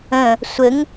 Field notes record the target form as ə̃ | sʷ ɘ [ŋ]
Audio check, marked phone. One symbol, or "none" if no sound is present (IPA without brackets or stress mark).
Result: ŋ